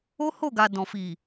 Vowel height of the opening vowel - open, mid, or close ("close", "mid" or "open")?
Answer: mid